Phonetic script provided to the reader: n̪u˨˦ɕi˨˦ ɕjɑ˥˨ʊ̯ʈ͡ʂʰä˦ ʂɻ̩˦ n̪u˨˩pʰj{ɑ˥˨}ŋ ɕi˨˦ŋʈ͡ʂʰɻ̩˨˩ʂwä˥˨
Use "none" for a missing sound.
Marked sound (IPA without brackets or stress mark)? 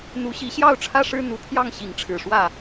ɑ˥˨